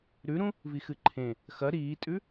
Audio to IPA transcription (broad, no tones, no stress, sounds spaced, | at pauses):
ɾ ʉ ɾ ũ | v i x ɨ ǃʰ ẽ | x ɐ ɾ iː tʼ ʉ